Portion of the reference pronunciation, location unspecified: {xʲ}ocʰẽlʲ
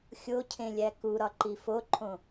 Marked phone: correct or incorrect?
correct